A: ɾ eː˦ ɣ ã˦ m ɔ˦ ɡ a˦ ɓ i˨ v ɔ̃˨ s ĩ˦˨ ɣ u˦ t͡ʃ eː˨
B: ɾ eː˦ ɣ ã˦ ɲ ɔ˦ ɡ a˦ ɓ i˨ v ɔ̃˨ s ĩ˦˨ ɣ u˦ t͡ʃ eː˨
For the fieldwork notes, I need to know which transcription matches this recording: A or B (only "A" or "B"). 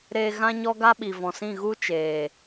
B